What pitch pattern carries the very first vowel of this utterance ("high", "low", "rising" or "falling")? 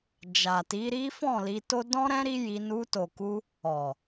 low